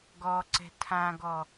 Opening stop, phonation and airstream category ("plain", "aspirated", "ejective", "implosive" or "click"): plain